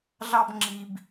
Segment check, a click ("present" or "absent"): present